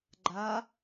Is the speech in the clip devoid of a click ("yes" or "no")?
no